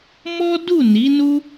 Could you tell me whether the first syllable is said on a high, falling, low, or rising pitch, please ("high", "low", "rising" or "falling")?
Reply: high